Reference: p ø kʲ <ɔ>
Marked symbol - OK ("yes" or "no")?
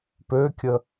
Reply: no